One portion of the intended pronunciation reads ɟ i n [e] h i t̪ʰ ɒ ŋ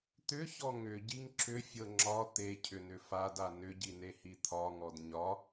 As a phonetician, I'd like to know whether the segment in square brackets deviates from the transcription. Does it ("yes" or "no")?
no